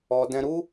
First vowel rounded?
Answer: yes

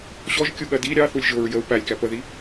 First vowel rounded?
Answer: yes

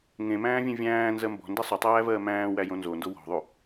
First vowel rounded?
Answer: no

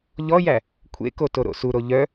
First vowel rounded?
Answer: yes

